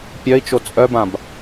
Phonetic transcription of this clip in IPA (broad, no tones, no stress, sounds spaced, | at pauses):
pʲ œ i̯ t͡ʃ o t͡sʼ œ b ã b